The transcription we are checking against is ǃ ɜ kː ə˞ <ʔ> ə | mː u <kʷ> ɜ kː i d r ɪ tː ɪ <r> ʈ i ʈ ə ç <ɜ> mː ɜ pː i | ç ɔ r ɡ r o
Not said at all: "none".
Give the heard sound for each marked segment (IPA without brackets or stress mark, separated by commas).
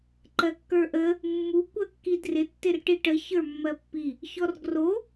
ʔ, kʷ, r, ə˞